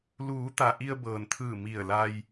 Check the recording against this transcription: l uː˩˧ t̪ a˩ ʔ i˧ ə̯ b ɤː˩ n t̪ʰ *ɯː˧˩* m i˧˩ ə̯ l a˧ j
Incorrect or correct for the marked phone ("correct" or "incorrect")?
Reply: correct